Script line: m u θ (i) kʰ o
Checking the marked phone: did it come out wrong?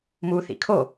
yes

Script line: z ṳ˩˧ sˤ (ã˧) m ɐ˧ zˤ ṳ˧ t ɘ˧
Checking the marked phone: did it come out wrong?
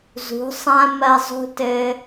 no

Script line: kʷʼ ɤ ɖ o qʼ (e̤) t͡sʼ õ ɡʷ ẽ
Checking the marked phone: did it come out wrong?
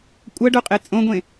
yes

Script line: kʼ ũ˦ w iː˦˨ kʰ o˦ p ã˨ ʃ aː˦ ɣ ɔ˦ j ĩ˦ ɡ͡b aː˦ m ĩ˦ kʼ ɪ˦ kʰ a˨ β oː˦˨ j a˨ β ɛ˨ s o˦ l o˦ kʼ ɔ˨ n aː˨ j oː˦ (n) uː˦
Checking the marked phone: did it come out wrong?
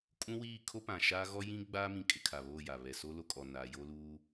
yes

